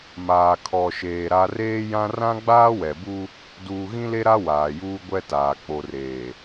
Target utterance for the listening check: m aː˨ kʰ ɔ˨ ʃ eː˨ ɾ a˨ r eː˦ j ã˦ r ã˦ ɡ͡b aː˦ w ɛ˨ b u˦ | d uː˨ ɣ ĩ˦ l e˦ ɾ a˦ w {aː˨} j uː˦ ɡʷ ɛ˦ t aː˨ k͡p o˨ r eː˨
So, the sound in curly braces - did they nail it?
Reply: yes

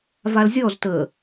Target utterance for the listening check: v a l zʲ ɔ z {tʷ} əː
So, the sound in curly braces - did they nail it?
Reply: no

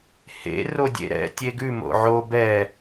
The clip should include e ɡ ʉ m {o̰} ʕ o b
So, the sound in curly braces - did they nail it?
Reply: yes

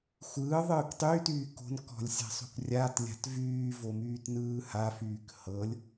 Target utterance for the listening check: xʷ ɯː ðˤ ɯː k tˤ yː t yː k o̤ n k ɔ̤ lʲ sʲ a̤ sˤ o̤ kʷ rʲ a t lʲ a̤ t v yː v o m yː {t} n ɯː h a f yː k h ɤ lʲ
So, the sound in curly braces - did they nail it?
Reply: yes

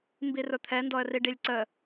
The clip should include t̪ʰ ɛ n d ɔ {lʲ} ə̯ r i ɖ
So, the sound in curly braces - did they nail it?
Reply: no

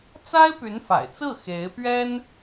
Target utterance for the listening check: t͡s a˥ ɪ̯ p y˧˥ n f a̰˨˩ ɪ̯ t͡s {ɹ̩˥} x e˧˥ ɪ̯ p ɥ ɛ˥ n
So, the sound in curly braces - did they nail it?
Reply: no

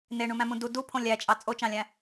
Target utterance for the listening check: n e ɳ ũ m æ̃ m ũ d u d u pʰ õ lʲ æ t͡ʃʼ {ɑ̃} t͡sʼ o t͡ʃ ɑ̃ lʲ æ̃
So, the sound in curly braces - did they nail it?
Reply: no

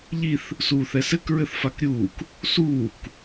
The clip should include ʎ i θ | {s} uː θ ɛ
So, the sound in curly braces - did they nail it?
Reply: yes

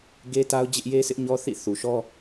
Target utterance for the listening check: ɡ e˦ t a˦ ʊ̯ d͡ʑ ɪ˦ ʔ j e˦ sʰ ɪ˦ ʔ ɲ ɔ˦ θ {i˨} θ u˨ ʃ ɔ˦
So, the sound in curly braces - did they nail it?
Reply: no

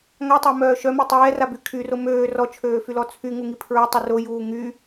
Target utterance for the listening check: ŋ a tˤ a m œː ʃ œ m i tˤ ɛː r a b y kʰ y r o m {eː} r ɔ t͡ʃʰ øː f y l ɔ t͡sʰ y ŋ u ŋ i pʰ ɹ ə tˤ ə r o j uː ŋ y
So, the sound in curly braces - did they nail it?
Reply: no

